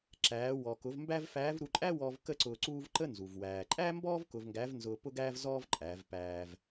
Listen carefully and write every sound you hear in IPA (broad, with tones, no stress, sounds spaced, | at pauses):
ǁ æː˩˧ w ɔ˩ k ʊ˩˧ v m b æ˥ v f æː˧˥ v ɾ u˧ ǃʼ æ˥ w ɔː˧ v k ə˥ ǀ ʊː˧ ǀ uː˥ v ǃ ə˥ n z u˩ v w æː˩ ǃʼ æ˥ m b ɔː˥ v k ʊ˧ v ŋ ɡ æ˧˥ v n z ʊː˧ p ʊ˥ ɡ æː˥ v z ɔː˥ v ǃʼ æ˩˧ v p æː˧ v